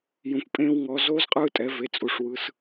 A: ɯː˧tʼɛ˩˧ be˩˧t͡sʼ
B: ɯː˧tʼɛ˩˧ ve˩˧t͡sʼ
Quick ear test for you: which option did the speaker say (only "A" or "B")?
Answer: B